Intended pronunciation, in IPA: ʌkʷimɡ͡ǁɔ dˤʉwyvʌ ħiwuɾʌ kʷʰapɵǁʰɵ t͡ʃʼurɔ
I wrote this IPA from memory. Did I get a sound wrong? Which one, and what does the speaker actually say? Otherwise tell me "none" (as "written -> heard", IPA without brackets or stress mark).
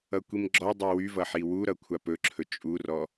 none